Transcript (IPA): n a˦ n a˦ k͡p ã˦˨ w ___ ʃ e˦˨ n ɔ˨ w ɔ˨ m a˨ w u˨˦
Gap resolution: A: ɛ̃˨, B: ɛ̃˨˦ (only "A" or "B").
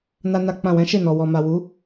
B